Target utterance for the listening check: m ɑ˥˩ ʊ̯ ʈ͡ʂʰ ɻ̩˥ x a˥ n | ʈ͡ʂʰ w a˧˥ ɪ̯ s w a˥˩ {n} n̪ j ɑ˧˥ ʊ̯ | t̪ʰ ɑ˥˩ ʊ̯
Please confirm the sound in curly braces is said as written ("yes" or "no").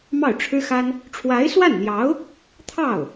yes